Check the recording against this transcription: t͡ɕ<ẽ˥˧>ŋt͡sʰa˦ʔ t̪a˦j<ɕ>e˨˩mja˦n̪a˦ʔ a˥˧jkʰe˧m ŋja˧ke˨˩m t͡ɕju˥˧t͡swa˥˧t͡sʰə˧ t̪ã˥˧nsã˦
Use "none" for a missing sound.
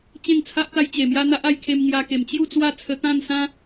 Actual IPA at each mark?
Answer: ẽ˥˧, t͡ɕ

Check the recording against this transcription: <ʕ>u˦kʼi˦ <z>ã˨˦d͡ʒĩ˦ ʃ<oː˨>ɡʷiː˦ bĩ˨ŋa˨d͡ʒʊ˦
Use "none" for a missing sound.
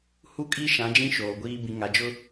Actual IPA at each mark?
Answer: h, ʃ, oː˨

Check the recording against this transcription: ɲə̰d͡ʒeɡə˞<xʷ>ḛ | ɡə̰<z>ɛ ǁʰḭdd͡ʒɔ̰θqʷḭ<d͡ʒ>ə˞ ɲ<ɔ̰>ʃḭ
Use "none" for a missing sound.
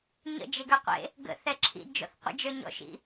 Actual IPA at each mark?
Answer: qʷ, θ, d͡ʒ, ɔ̰

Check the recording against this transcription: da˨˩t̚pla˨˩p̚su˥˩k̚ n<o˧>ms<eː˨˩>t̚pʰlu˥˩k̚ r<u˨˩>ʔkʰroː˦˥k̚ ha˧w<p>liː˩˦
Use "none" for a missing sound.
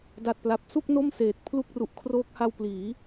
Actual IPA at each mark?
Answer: o˥˩, eː˨˩, u˨˩, p

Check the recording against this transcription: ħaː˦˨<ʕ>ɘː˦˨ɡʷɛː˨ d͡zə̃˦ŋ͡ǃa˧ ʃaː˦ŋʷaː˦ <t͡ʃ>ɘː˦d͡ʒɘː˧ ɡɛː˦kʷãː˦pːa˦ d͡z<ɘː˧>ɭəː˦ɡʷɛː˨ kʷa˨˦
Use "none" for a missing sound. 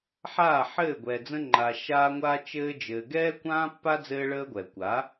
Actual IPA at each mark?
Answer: ħ, t͡ʃ, ɘː˦

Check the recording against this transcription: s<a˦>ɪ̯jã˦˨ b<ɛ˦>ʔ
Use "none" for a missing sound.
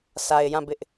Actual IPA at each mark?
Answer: a˨, ɪ˦

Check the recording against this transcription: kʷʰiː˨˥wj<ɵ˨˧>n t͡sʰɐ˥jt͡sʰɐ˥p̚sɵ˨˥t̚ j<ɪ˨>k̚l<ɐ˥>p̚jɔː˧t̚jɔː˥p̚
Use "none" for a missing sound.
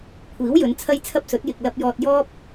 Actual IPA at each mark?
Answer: ɵ˨˧, ɪ˨, ɐ˧

